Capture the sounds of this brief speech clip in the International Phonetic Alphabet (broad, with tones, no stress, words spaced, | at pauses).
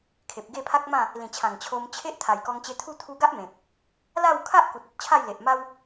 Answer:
kʰe˨p̚ɡe˥˧pʰa˦k̚mã˥˧ | lĩ˨˩t͡ɕʰã˨˩ŋ t͡ɕʰo˧mt͡ɕʰe˦ʔ t̪ʰa˨˩jkɔ˧ŋt͡ɕe˧t̪ʰu˥˧ t̪ʰu˧ ɡa˦ʔmẽ˨k̚ | la˥˧wkʰa˦ʔku˨t̚ ɔ˦t̚t͡ɕʰa˥˧jle˨ʔma˦w